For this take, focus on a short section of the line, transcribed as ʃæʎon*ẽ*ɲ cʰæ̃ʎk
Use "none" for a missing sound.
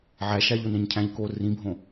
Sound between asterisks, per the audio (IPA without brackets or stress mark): ẽ